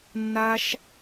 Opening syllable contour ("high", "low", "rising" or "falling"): high